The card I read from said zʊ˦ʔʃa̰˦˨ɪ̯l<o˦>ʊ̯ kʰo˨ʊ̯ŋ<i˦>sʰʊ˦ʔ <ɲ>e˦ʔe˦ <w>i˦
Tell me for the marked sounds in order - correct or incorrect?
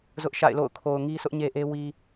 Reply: incorrect: o̰˦˨, correct, correct, correct

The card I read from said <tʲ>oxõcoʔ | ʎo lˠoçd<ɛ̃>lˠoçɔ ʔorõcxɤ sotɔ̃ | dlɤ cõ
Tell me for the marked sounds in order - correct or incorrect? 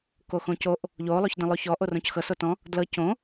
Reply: incorrect: k, incorrect: ẽ

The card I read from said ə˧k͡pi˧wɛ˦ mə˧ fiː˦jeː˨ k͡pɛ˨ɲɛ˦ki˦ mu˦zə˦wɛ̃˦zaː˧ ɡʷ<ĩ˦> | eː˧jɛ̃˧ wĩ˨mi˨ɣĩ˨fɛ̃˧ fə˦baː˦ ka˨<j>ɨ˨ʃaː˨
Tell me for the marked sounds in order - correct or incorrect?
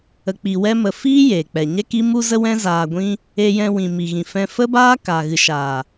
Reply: correct, incorrect: ɣ

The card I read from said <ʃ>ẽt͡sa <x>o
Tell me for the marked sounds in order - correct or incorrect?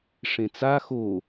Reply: incorrect: ʂ, correct

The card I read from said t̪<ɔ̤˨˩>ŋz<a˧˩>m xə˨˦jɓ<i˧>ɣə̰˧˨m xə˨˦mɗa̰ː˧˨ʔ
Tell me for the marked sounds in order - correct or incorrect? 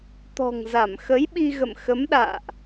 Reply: correct, correct, correct

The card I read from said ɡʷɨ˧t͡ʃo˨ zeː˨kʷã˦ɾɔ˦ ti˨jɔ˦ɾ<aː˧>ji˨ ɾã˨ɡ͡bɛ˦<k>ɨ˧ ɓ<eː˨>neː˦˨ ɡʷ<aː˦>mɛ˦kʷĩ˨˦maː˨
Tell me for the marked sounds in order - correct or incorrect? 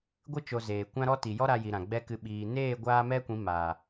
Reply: incorrect: a˧, correct, incorrect: iː˨, correct

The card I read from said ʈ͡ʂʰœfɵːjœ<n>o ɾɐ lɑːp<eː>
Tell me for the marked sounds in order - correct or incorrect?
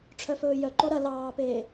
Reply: incorrect: ǃ, correct

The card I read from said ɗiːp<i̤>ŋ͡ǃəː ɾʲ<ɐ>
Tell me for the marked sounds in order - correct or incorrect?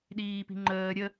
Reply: correct, incorrect: ə

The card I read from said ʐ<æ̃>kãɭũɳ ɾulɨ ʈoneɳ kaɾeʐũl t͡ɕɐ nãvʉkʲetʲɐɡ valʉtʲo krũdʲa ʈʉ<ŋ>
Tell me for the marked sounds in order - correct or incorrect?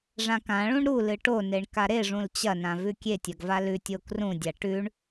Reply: incorrect: ã, incorrect: ɳ

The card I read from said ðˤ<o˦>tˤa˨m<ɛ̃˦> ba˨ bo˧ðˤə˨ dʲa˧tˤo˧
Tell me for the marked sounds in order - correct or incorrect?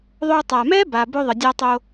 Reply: incorrect: o˧, incorrect: ɛ˦

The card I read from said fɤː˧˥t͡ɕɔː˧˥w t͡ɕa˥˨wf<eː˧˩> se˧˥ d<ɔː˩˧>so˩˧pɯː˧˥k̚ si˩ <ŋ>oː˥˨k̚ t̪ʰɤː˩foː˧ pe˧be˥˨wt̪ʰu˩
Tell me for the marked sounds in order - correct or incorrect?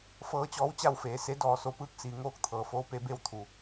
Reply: incorrect: eː˩˧, correct, correct

